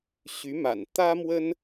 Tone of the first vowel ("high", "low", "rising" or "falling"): rising